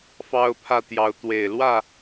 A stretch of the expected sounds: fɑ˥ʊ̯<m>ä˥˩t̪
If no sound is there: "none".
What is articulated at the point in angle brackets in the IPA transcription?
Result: pʰ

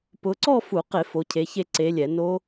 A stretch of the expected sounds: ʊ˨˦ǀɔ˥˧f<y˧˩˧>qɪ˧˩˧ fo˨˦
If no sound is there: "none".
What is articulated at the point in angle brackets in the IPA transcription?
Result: u˧˩˧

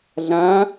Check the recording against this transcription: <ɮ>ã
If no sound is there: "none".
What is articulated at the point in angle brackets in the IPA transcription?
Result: ɮ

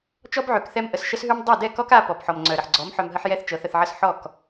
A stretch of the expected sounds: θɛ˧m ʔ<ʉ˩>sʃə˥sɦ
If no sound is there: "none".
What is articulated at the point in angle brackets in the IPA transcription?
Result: ə˩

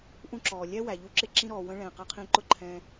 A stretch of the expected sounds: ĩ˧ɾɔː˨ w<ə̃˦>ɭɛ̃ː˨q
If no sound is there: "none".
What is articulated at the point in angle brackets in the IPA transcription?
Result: ə̃˦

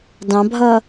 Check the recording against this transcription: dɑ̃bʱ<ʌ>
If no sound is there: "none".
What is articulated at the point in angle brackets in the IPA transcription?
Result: ʌ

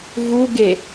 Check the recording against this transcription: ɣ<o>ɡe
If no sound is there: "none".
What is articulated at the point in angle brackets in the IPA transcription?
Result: u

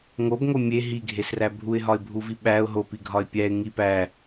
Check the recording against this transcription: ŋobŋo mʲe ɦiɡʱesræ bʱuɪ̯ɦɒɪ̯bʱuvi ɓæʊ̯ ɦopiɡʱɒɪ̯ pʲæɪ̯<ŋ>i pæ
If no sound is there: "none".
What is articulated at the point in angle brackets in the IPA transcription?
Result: ŋ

